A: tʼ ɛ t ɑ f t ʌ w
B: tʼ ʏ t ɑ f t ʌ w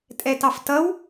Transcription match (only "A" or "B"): A